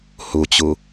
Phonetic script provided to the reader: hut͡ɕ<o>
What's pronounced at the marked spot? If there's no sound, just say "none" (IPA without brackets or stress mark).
u